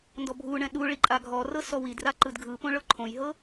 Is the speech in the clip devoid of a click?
no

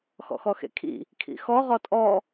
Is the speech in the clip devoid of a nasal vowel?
yes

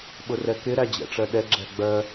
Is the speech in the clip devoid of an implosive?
no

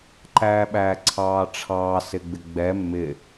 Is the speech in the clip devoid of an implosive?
no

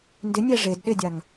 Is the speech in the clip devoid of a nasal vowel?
yes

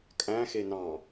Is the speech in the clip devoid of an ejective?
no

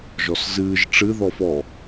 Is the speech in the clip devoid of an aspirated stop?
yes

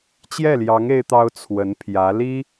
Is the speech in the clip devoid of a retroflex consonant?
yes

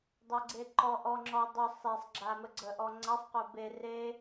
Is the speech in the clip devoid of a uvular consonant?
no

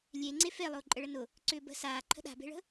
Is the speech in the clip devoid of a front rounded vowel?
no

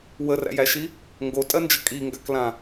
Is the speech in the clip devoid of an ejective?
no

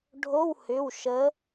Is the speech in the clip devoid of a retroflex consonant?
no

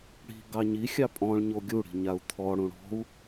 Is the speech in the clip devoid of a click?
yes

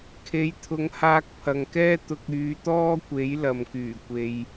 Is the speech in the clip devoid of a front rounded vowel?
no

